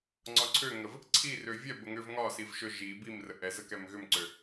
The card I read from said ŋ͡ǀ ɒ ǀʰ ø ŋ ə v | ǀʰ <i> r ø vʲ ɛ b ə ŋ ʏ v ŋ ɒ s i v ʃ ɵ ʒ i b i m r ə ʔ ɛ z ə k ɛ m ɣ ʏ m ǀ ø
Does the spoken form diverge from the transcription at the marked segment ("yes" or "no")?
no